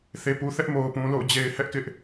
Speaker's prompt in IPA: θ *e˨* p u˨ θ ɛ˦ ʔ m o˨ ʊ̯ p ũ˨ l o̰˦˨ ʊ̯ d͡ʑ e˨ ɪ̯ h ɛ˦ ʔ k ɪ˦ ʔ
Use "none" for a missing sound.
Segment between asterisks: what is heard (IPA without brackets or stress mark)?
e˨